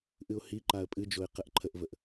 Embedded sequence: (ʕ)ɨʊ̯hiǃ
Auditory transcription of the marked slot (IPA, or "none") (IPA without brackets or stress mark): ʔ